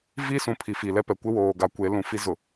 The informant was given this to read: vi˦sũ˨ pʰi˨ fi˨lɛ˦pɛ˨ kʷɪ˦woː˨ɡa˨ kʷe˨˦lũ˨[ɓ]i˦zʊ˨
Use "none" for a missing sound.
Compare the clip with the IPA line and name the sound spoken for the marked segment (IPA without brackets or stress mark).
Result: f